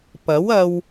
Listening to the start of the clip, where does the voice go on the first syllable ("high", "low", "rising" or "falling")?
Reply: rising